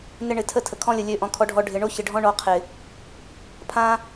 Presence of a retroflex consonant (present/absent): present